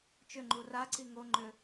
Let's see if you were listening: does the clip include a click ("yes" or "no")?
yes